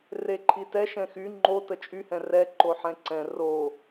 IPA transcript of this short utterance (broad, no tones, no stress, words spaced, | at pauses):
reǃʰitɛ ʃɛ̃xy ŋ͡ǃo tət͡ʃʼyhɛ̃ rɛ ǃoħɛ̃ǀɛ̃ ro